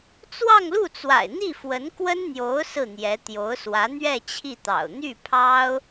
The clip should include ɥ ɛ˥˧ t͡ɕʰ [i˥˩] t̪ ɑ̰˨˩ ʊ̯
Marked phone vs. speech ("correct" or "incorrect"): correct